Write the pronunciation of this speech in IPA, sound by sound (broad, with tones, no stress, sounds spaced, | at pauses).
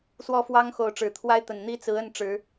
s w ɔ˥˨ f w ɑ˦ ŋ x o˨˦ ʊ̯ ʈ͡ʂ ɻ̩˨˩ t̪ʰ w a˦ ɪ̯ t̪ ə˨˩ n n̪ i˦ t͡s ɹ̩˨˦ ə˥˨ n ʈ͡ʂ ɻ̩˨˦